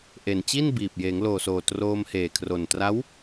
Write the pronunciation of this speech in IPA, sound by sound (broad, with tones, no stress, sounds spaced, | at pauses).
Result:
ʔ e˨˩ n t͡ɕ i˥˩ n b iː˨˩ p̚ j eː˩˦ ŋ l oː˨˩ s oː˨˩ t r oː˧ m h eː˨˩ kʰ r o˨˩ n t r a˦˥ w